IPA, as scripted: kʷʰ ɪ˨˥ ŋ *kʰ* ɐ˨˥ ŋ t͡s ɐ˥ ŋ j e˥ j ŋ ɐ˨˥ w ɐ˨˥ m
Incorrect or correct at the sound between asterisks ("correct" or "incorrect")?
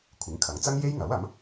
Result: correct